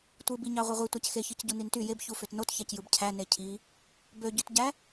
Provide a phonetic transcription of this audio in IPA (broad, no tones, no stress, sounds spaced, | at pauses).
tʷ ɯ b i ɲ ɑ ʁʷ e ʁʷ i tʷ æ c x e ç ɯ c ɟ u n i n t y j e b ç u f ø t n o t ç æ c j ɯ b cʰ æ n e cʰ i | b ø ɟ y t ɟ æ